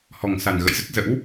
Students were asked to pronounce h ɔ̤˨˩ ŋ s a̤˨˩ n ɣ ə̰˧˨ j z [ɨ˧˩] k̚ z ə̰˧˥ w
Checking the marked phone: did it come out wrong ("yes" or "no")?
yes